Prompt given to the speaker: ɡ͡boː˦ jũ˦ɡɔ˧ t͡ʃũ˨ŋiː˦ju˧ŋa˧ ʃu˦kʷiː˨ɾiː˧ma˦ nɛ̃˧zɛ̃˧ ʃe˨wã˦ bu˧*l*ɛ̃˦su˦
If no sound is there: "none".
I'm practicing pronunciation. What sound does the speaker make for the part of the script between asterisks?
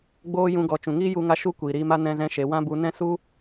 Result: n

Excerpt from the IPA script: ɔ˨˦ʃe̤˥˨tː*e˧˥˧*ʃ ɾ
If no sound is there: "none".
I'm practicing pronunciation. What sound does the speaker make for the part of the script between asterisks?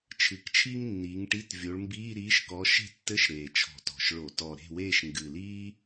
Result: ɘ˧˥˧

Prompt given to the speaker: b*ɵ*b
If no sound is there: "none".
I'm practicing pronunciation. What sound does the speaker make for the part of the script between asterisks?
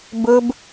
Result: ɵ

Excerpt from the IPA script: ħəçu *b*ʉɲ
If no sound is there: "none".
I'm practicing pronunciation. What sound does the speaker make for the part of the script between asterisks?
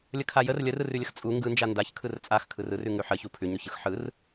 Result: pʰ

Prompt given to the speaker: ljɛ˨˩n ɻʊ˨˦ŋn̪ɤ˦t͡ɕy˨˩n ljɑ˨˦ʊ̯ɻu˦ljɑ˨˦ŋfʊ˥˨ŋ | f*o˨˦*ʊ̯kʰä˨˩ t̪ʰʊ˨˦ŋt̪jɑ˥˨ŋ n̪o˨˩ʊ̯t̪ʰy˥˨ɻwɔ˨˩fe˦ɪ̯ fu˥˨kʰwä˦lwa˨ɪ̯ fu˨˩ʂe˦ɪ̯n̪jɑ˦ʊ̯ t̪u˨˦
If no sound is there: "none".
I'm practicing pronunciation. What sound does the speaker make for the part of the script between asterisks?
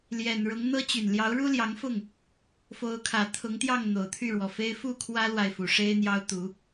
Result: o˨˦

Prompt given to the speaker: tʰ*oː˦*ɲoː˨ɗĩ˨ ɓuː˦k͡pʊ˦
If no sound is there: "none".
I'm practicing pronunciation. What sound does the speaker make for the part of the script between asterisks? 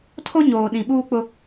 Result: o˦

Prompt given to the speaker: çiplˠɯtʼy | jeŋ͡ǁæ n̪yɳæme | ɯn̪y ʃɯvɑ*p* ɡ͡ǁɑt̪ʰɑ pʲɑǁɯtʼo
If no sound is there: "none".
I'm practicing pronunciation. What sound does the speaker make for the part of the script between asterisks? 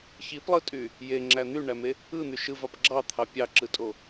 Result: p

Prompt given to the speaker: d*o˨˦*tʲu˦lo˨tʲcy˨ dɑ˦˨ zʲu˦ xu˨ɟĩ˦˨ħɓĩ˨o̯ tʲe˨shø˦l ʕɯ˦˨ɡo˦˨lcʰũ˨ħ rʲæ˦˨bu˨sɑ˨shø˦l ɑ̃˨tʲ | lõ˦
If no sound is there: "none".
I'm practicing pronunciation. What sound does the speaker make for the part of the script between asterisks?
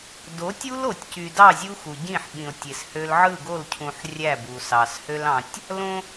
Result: o˨˦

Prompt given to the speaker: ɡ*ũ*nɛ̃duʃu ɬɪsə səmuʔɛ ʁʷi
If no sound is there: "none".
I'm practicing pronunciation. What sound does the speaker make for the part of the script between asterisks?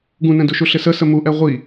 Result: ũ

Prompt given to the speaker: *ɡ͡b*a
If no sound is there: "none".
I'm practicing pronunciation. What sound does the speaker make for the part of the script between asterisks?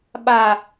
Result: ɓ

